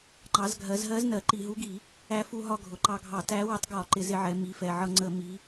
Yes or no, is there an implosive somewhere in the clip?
no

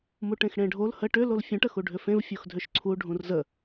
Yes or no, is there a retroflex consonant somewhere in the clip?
yes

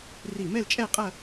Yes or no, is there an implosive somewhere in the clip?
no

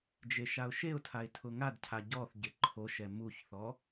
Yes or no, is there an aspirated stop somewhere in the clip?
yes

